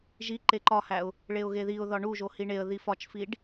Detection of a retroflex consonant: present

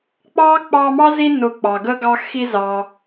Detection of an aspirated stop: absent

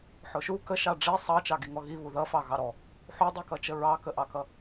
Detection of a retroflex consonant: present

